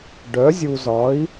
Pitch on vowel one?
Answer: rising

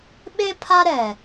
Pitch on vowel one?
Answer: high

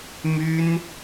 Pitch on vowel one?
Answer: high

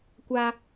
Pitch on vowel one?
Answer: high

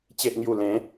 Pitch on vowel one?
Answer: low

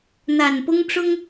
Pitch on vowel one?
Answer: low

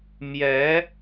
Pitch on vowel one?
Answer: rising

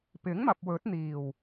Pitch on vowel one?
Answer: rising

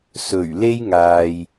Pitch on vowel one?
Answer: low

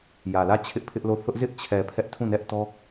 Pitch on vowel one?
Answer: low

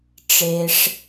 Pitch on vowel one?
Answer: low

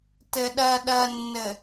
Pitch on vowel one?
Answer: low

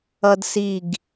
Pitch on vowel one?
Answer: high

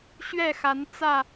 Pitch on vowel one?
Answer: falling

